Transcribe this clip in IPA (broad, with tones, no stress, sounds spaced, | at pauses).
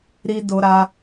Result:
ɾ i˧ d o˧ ɾ a˧